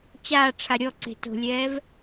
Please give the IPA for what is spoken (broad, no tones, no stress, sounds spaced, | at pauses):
t͡ɕ aː ʈ͡ʂʰ a ɾʲ ɔ ǀ e̤ t o̤ lʲ ɛː v